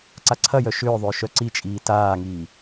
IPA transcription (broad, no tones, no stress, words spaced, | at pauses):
ǀaǀʰɐjœ ʃʏːðˤʏː ʃœǀit͡ʃʼiː taːŋiː